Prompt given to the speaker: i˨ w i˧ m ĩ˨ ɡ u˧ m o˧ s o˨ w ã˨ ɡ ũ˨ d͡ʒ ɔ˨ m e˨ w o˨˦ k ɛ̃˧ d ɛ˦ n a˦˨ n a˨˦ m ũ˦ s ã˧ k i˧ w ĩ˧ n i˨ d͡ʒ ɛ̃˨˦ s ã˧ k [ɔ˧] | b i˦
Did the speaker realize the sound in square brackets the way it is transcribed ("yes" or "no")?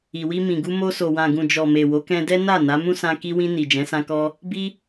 yes